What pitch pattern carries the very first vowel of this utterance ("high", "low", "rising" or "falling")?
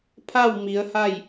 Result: falling